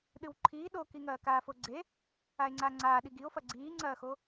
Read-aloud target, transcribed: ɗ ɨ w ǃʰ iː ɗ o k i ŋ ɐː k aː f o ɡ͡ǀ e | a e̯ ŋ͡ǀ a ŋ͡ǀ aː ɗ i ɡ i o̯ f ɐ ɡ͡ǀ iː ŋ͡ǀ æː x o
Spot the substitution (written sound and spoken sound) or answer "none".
æː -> ɐː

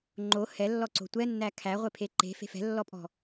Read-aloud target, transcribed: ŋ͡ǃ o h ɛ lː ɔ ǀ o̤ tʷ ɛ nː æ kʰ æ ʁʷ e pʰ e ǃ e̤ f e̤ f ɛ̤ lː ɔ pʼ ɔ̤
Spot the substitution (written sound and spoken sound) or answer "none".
none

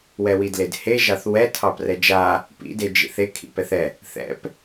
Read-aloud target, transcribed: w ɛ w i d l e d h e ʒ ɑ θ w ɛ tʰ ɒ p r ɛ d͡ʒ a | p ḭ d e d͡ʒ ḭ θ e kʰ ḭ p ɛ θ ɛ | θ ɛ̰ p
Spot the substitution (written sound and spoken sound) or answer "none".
ɒ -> ɑ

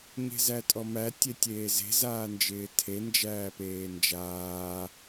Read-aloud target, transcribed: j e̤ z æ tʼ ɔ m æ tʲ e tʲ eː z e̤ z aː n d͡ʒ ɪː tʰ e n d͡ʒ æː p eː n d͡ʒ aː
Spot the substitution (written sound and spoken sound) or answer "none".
j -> ɲ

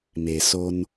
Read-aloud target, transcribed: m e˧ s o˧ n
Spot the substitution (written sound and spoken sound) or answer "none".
e˧ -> e˩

